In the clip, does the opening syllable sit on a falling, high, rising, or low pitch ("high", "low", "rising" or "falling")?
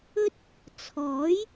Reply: high